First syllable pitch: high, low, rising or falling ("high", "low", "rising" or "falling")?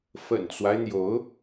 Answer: low